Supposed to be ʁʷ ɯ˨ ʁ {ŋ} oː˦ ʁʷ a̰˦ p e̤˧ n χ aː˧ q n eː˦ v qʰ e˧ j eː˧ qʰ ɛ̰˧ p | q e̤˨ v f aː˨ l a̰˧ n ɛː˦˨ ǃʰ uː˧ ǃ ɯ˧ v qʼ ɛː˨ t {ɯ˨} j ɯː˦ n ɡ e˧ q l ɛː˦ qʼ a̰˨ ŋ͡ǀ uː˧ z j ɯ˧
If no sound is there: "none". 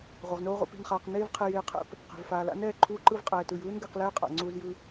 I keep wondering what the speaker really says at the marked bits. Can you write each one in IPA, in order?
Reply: n, ɯ˨

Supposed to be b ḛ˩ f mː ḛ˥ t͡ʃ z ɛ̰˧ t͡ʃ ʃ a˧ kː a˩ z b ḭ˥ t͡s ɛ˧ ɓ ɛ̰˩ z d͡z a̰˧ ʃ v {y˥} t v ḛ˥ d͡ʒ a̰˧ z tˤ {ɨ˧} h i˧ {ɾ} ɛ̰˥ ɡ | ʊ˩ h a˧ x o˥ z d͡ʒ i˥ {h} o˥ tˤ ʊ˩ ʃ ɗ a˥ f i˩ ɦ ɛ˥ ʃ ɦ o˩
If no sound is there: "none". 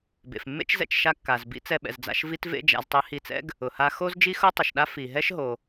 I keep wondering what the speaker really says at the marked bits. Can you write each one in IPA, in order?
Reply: i˥, e˧, t͡s, x

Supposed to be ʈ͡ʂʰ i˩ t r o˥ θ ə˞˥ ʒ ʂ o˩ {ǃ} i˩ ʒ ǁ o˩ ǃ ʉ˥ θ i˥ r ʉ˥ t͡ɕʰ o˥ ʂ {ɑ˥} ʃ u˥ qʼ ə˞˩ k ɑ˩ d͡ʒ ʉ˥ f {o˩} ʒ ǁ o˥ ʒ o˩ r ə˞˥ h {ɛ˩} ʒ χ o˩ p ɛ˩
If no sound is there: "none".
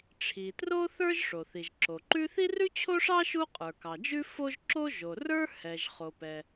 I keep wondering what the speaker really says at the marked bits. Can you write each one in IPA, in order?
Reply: θ, ɑ˥, o˥, ɛ˩

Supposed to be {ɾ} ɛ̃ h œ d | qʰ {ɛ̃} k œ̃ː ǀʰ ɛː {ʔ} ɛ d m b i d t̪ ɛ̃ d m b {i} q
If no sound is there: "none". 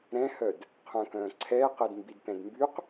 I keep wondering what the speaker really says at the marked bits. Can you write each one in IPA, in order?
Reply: ɾ, œ̃, q, y

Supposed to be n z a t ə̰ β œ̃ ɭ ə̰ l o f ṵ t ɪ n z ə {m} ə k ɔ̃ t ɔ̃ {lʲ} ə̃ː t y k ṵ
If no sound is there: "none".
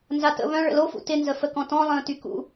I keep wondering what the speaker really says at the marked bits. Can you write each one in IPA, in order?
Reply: f, lˠ

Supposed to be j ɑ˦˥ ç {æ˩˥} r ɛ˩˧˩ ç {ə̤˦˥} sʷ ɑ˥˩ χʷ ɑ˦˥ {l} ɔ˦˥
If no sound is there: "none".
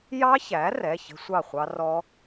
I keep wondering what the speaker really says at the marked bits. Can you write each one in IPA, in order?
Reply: æ˩˥, ə̤˦˥, r

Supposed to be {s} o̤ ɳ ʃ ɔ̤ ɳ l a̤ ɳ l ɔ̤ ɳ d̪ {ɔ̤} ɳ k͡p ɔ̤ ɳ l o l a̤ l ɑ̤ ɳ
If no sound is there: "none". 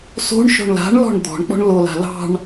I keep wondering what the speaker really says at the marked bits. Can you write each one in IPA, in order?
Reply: s, ɔ̤

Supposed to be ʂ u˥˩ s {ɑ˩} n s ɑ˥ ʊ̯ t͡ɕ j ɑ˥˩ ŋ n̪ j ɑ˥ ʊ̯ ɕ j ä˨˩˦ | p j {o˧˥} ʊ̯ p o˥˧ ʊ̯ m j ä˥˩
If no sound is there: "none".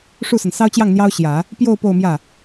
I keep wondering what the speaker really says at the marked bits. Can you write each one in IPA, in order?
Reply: ə˩, o˥˧

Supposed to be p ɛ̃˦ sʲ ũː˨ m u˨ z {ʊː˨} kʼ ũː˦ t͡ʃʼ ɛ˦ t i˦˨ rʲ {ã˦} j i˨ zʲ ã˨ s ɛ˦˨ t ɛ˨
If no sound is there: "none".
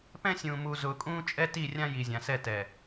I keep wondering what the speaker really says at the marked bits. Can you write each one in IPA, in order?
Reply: ʊː˨, ã˦

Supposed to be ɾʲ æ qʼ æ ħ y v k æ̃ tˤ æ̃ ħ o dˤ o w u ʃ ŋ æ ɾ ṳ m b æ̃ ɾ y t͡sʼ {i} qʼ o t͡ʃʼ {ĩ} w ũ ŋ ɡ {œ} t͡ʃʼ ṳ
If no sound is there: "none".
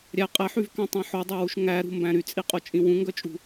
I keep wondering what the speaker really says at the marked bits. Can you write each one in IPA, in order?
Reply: i, ĩ, œ

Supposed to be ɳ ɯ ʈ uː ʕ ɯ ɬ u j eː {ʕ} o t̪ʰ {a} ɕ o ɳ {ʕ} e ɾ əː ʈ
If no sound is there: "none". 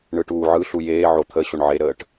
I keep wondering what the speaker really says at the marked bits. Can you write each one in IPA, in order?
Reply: ʕ, ə, ʕ

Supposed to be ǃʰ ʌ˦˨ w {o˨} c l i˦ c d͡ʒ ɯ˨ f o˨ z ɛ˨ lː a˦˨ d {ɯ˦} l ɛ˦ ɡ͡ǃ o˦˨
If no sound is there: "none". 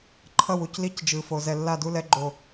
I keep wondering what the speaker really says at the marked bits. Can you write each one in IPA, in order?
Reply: u˨, u˦

